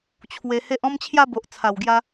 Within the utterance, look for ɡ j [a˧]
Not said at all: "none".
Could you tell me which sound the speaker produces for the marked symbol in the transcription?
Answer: a˧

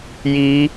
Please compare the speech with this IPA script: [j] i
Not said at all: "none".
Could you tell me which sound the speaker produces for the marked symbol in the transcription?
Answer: j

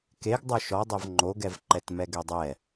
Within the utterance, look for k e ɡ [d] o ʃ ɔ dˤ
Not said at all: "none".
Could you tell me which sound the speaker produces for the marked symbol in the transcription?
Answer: dˤ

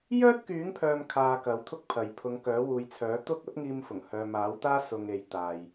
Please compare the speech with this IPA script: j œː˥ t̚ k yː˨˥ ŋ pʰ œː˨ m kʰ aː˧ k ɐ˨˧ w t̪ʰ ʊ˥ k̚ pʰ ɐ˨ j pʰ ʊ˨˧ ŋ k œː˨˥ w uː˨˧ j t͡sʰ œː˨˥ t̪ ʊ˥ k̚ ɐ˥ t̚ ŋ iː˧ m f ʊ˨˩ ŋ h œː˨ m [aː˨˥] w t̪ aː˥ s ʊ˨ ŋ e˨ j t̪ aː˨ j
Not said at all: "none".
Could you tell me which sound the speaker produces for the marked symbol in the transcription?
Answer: aː˨˥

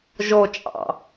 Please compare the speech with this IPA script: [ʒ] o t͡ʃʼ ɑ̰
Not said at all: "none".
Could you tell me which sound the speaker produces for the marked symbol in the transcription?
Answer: ʒ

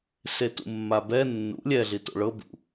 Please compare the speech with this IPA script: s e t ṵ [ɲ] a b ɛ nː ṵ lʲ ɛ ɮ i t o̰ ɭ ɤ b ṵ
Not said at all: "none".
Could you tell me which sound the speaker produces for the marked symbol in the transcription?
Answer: mː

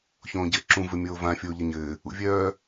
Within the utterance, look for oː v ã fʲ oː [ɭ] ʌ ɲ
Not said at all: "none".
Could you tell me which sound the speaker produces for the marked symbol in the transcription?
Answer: ʎ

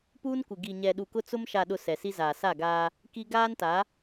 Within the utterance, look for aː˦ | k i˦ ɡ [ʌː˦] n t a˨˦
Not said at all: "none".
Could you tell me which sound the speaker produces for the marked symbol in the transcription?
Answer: aː˦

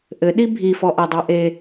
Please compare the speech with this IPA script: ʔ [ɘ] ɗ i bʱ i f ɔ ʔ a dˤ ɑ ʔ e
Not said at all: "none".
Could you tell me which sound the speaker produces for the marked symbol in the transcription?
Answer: ɘ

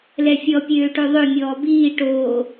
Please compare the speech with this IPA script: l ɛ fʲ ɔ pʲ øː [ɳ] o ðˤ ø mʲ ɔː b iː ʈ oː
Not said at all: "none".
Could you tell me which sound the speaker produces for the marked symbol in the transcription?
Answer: ʈ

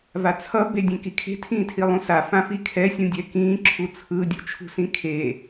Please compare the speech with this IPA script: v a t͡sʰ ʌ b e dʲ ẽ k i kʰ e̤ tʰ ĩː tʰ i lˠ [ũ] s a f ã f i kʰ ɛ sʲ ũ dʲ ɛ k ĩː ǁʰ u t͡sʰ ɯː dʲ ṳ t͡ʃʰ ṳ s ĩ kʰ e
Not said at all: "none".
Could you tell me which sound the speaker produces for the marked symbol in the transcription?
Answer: ũ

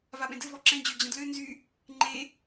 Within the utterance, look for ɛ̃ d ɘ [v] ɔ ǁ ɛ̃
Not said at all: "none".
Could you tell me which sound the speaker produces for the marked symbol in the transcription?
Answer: v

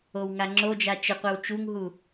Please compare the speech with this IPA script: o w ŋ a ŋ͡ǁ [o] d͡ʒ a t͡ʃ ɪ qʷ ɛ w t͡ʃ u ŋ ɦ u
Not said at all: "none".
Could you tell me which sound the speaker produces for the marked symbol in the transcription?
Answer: o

